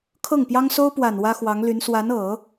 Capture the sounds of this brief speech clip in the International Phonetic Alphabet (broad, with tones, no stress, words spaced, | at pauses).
kʰɤ˥˩ŋpjɑ˥ŋ so˥ʊ̯pwa˨˩n wä˥xwɑ˧˥ŋly˧˥n swa˧˥nɤ˨˩˦